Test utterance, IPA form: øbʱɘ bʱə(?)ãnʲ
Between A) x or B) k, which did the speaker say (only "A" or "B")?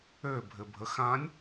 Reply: A